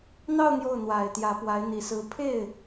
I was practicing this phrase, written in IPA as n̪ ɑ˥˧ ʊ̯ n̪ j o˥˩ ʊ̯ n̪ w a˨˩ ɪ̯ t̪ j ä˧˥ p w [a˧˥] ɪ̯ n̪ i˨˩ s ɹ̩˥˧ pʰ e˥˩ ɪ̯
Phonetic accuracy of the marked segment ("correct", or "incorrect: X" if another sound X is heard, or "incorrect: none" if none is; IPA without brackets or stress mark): correct